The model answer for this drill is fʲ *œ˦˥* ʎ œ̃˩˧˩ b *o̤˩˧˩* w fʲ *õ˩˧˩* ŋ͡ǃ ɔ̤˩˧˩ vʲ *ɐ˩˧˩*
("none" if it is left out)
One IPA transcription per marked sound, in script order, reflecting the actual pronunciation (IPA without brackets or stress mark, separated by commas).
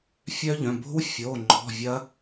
œ˦˥, o̤˦˥, o˩˧˩, ɐ˦˥